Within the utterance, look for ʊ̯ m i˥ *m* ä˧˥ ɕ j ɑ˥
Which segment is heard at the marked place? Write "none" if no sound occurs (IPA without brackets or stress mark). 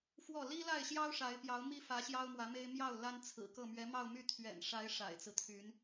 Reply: f